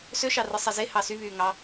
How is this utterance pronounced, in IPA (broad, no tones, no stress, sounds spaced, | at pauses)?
s ø ʃ ɑ r ɯ sˤ e z e h ɑ s y β yː ŋ ɑ